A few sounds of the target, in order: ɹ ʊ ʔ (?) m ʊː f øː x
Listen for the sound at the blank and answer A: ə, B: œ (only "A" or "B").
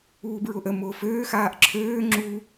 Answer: A